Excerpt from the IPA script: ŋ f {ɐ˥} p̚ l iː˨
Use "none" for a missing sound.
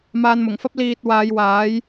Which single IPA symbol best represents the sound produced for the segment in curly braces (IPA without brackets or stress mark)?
ɐ˥